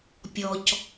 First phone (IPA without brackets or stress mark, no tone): pʲ